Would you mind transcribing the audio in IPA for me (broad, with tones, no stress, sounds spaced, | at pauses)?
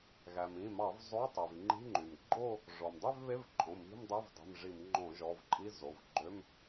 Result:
ɣ æ˩ m ĩ˩˧˩ m ɑ˧˩˧ v zˤ o˧˥˧ tˤ i˩ v ŋ͡ǃ i̤˧˥˧ ŋ͡ǃ y˩ m ɡ͡ǃ o˥˧ | ʐ ɔ˩ m dˤ y˥˧ v β e˧˥˧ v ǃʼ õ˩˧˩ m i̤˧˥˧ m dˤ e˧˥˧ v dˤ i̤˩˧˩ m ʐ i˧˩˧ m ŋ͡ǃ õ˧˩˧ ʒ ɔ˩˧˩ v ǃʼ i˧˥˧ z o˩˧˩ v ɡ͡ǃ ø˧˥˧ m